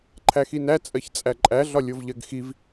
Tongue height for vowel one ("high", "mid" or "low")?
low